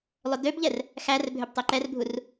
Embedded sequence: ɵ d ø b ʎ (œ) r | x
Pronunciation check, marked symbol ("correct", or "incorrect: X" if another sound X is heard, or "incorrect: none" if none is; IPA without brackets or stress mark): incorrect: ɛ